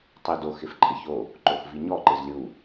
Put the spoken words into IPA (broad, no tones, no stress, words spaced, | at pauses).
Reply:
tˤedox ɪfǃʼɪço | ǃoxviɲɔ ǃɪzlʲu